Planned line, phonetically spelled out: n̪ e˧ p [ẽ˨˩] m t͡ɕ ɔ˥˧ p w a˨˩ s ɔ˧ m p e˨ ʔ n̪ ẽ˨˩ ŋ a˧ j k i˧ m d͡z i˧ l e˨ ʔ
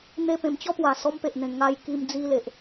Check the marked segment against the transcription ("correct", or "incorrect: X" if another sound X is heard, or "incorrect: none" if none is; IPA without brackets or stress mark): correct